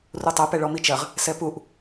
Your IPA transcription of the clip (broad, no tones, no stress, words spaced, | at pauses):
rutˤɐ pɛɭɔmit͡ʃɐʁ | sɛpuʔ